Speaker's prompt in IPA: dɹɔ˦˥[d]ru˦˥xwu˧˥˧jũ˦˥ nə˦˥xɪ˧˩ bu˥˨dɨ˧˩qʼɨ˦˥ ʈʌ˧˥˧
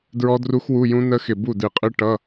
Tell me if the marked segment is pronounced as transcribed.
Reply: yes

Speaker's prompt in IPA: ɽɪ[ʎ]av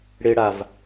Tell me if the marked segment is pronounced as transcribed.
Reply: no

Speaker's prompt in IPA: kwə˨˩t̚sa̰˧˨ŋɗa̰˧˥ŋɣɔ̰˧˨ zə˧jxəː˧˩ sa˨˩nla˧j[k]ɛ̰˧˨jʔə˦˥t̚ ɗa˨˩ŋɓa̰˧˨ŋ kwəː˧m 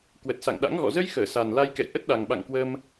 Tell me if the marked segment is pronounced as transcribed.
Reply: yes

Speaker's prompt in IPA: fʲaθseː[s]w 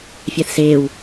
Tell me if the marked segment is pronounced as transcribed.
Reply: no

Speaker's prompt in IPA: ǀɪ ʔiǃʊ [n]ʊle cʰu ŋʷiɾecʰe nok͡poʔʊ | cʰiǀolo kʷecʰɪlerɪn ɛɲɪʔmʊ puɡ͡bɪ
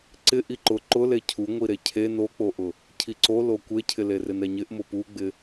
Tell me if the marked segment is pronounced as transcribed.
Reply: no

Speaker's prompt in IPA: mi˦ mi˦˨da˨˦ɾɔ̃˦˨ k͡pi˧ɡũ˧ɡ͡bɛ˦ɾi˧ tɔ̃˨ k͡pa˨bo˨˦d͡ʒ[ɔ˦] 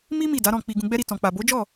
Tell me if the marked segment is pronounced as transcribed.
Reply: no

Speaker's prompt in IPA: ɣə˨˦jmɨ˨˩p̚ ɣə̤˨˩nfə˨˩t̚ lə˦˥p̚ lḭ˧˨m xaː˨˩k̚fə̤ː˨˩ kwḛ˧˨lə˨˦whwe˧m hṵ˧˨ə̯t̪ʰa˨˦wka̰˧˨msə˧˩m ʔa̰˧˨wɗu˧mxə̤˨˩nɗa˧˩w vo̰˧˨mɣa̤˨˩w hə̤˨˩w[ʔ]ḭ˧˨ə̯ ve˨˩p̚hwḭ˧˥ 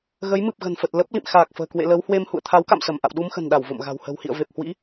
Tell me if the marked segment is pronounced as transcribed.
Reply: no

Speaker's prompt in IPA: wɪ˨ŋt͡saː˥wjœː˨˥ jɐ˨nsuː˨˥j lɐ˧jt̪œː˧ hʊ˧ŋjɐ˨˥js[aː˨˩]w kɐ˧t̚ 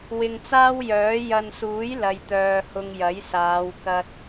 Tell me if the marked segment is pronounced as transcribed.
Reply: no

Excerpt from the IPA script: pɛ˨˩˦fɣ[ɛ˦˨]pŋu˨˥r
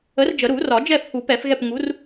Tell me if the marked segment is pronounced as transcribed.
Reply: yes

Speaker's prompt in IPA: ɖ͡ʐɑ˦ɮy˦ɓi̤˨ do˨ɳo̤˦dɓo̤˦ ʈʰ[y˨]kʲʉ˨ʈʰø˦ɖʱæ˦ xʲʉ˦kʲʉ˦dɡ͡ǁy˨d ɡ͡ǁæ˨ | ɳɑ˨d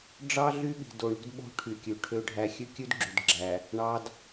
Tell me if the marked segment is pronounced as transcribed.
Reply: yes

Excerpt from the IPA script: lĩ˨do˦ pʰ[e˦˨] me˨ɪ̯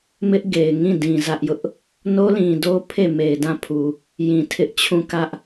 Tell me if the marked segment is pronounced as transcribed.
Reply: yes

